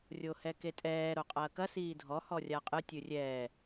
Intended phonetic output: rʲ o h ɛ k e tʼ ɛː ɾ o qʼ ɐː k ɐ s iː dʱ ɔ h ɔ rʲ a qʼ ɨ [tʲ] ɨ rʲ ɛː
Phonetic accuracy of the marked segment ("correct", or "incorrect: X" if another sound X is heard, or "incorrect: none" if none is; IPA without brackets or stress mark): correct